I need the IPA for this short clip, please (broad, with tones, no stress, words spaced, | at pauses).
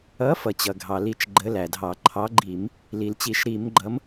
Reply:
ʌ˨˥ fʌ˩t͡ɕʌ˩ɡʱɑ˩li˧˩˧t͡ʃ ɡ͡ǃə˨˥læ˩dʱɑ˧˩˧ ǃʰɑ˨˥ɡ͡ǃi˧˩˧m | li˩lt͡ɕi˧˩˧ʃɾi˧˩˧mɡ͡ǃʌ˨˥m